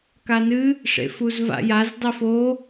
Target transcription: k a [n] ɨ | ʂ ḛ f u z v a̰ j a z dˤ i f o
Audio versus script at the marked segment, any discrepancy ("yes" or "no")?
no